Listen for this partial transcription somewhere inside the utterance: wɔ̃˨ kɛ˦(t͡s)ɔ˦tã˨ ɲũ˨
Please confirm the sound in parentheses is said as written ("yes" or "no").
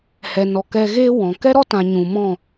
no